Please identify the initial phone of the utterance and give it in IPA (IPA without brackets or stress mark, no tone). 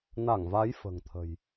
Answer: n